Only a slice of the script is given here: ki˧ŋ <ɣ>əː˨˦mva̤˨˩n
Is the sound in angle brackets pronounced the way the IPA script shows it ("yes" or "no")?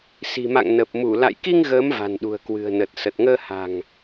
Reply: yes